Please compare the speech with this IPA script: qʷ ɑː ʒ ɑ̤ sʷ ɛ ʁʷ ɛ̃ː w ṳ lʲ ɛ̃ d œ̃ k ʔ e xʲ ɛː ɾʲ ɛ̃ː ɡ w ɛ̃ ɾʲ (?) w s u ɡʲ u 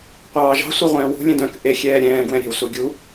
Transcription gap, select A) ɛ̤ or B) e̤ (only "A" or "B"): A